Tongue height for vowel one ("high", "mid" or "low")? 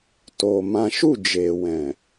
mid